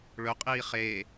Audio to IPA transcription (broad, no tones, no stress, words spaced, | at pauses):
ɭɵqʼiː χe